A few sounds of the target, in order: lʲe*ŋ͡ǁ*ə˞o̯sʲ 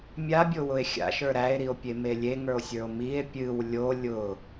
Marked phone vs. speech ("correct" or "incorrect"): incorrect